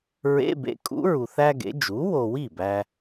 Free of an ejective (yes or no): no